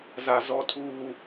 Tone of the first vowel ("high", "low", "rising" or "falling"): low